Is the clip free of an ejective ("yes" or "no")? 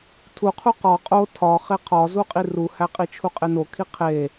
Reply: no